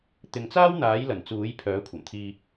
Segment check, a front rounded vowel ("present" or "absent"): present